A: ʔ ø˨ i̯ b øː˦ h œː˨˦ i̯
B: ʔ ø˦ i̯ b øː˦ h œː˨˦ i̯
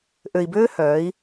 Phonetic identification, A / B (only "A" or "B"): A